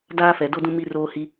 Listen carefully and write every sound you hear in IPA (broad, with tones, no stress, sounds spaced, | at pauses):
d aː˦ f ɛ˨ d o˦ d ũ˦ m i˦ r oː˦ h i˦